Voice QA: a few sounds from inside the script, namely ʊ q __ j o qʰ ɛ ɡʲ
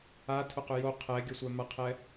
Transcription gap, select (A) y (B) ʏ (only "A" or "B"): B